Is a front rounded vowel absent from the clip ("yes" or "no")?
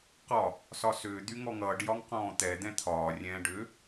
no